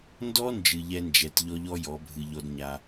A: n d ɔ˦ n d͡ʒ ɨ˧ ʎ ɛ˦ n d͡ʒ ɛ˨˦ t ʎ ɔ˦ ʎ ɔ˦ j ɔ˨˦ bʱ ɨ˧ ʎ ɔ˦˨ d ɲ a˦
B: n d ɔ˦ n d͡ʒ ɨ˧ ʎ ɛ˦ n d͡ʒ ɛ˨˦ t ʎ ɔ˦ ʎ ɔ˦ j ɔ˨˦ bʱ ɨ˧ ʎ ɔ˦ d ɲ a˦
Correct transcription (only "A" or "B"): B